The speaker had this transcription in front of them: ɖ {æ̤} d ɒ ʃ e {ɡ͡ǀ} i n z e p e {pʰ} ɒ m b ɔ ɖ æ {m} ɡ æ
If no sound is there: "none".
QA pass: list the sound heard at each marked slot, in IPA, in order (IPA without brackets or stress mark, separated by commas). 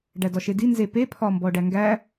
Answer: æ, d, pʰ, ŋ